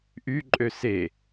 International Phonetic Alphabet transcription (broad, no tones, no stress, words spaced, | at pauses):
ʔyǃʼø se